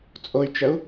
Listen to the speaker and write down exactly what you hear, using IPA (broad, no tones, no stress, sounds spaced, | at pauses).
t͡sʼ o y̯ t͡ʃ ə u̯